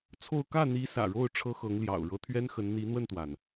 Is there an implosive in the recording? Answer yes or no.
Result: no